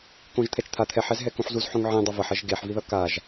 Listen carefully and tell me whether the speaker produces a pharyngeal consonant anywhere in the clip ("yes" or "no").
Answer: yes